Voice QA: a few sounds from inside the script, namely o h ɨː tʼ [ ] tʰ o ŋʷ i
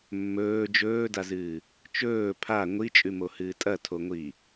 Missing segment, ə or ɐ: ɐ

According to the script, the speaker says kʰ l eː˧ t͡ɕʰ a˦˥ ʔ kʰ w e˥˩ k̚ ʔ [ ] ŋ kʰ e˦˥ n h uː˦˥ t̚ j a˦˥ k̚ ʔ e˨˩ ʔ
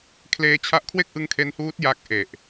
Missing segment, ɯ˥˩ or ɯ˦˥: ɯ˦˥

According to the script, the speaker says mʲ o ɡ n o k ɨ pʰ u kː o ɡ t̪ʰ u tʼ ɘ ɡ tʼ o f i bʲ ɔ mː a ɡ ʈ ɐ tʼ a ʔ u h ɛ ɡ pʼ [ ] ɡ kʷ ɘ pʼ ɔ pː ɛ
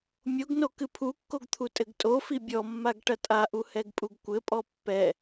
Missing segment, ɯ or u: u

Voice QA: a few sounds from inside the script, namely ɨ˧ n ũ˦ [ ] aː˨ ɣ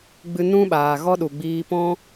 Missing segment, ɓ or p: ɓ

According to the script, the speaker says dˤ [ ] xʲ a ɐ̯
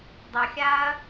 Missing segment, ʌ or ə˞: ʌ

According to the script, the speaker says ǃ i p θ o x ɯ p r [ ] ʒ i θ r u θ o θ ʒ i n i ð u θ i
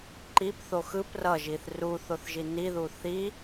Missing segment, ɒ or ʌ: ʌ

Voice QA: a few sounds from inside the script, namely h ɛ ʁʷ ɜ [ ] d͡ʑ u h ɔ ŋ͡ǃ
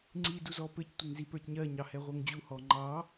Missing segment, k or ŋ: ŋ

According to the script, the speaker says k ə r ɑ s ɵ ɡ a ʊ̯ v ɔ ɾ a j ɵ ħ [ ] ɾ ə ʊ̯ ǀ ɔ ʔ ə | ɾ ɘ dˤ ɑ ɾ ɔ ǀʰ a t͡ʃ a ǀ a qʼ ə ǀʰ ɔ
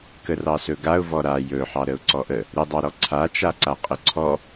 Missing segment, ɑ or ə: ɑ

